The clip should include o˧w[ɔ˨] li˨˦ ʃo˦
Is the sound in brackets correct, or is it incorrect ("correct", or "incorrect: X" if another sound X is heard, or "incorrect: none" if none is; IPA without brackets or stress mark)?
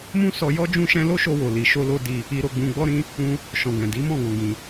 incorrect: o˨